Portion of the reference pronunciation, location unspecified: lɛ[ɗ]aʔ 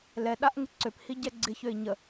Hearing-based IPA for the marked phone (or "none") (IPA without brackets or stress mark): ɗ